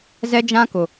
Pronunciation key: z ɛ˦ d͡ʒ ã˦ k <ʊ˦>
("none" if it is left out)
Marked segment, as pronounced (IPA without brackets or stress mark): ʊ˨